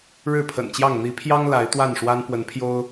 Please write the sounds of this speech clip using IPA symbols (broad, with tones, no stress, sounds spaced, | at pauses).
ɻ ɻ̩˥˨ pʰ ə̰˨˩ n t͡ɕ j ɑ˥˨ ŋ n̪ i˨˦ pʰ j ɑ˦ ŋ l a˨˦ ɪ̯ t̪ w a˥˨ n ʂ w a˦ n p w ə˨˦ n pʰ j o˦ ʊ̯